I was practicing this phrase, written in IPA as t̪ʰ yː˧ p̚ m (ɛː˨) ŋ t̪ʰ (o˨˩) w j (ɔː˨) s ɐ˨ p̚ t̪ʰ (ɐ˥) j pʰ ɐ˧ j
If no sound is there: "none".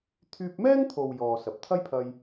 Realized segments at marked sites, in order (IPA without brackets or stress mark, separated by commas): ɛː˥, o˨, ɔː˨, ɐ˥